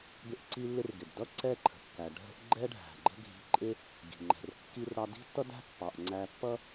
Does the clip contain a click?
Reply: yes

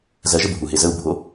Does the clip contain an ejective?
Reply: no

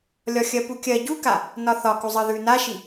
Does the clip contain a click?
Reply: no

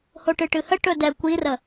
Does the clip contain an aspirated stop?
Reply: no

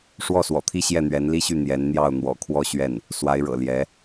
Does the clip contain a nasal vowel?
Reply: no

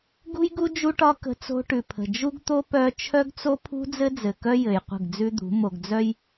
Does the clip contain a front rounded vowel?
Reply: yes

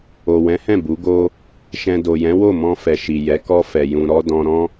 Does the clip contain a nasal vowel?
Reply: yes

